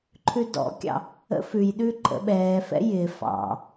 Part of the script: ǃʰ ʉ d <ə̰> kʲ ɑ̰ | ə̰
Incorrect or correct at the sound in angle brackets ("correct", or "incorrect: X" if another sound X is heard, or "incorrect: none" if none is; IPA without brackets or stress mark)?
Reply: incorrect: ɔ̰